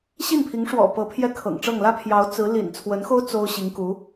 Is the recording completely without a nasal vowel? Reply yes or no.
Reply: yes